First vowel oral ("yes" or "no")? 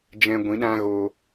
no